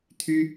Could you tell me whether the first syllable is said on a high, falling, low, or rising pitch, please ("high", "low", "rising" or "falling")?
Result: high